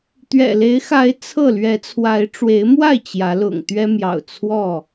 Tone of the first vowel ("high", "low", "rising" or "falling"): low